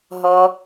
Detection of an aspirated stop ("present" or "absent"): absent